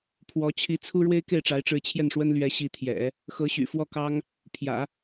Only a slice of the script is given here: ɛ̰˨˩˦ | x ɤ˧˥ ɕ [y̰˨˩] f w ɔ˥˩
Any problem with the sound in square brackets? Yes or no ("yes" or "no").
no